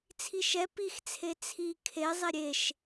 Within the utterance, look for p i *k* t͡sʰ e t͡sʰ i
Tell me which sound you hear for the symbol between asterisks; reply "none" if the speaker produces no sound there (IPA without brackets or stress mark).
x